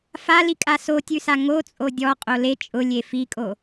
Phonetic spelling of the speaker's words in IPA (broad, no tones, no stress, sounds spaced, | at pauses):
f a l i kʼ a s o tʲ ʉ s a ŋ o t͡sʼ o dʲ ɔ qʼ o l e t͡ʃʼ ʊ lʲ e f i kʼ o